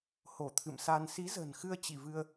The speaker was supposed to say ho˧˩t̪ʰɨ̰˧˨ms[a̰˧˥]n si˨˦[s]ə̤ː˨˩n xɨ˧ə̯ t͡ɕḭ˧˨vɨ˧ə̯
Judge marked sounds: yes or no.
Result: no, no

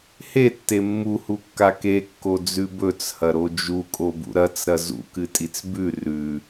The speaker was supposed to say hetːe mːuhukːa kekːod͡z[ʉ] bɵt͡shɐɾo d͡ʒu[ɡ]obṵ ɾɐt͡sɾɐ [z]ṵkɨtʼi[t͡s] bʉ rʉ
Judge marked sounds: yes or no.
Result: yes, no, yes, yes

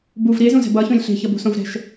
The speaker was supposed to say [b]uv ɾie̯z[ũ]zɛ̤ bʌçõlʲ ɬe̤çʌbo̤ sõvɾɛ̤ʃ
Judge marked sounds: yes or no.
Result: yes, yes

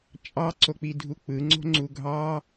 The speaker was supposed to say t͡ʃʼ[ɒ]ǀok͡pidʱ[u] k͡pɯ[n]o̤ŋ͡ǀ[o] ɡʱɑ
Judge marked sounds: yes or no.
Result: no, yes, no, no

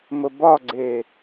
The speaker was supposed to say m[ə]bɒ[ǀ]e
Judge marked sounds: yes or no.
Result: yes, no

